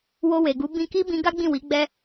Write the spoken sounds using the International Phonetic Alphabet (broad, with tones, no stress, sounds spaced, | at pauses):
w o˧ w e˨ ɡ u˨˦ b ĩ˧ k i˦ b ĩ˧ ɡ a˦ ɡ͡b ĩ˦˨ w i˨˦ ɡ͡b ɛ˦